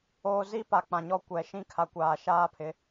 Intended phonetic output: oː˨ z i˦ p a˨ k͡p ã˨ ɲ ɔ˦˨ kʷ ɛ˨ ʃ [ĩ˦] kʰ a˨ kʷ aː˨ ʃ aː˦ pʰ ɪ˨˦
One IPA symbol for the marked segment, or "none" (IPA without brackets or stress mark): ĩ˦